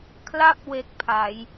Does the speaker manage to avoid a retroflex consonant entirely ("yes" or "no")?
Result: yes